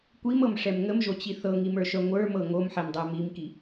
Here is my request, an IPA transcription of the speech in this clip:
kʷimɤmʂɛm ŋəmʒot͡ɕi θɤŋimə˞ʃœ ŋʷə˞mɤ ŋomħɛmdˤə˞ mimki

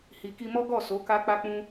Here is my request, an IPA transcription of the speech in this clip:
hi˨ki˧mɔ˦ ɡɔ˦˨ so˨˦ka˦k͡pa˦k͡pũ˦

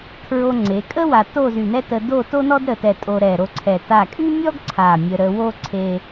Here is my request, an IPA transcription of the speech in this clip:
kʰɹo˧ŋ͡ǀe˩˧ kʼə˥ wa˧ to˥˧zy˧˩nɛ˥tə˧ do˥˧ to˥nɔ˥dɾə˧˩tɛ˧˩ tʼo˧ɾɛ˧˩ɾo˥˧ǀʰɛ˧˩ ta˧˩kʼy˥mʲɔ˥ɡ ǀʰa˧˩mʲə˧ ɾə˧wo˥ ǀʰe˧

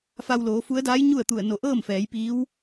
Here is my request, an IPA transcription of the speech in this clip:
fa˧wloː˩˧fu˧˥ə̯daː˧˥j ɲu˥˨ə̯t̪u˧˩ə̯no˧˩ ʔɤː˥˨mfɛː˩˧j piː˧˥w

